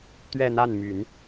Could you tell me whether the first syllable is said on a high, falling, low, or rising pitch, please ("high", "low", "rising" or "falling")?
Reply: falling